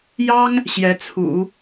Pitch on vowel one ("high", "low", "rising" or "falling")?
high